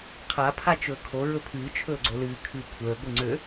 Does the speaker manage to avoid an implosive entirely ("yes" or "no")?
yes